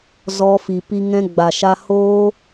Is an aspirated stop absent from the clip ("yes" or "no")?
yes